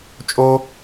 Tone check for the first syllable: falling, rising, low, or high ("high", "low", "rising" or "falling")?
high